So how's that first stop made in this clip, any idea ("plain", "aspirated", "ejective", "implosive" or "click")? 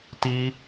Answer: plain